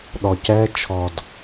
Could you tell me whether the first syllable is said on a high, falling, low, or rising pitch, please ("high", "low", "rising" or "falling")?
low